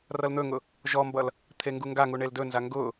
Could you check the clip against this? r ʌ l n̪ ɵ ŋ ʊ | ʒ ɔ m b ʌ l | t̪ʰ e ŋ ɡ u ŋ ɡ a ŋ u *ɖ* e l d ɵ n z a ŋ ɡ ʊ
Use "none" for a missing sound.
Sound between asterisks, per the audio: ɳ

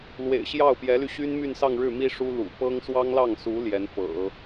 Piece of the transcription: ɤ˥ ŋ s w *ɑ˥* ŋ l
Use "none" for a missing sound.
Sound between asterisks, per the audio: ɑ˥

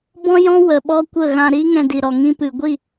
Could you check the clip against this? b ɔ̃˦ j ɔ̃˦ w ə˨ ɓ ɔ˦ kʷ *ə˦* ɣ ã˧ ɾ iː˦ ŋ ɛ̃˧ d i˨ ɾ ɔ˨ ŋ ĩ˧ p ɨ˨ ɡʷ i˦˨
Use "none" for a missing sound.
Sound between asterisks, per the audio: ə˦˨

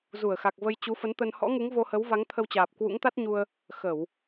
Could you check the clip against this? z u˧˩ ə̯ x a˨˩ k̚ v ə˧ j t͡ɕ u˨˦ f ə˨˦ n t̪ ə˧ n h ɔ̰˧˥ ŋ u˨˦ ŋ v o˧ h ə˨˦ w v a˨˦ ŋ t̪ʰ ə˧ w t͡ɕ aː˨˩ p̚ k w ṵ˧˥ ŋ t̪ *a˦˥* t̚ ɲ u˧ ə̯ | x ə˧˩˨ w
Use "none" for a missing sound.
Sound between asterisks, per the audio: a˦˥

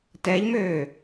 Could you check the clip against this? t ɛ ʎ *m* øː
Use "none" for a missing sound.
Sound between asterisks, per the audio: m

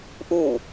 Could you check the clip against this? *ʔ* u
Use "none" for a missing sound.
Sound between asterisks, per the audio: ʔ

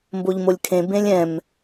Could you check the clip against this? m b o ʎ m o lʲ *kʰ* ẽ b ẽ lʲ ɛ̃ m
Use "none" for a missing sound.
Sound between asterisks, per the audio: kʰ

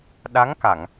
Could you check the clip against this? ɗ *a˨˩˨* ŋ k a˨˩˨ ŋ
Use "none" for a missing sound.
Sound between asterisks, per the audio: a˧˥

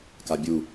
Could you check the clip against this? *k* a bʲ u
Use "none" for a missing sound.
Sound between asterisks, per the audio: k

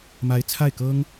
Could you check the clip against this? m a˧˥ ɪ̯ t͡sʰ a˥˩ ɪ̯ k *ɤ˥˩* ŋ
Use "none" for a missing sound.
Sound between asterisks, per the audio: ɤ˥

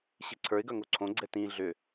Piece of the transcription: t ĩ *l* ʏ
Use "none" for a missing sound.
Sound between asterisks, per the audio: ɮ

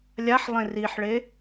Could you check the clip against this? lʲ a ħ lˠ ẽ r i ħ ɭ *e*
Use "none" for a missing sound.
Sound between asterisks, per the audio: e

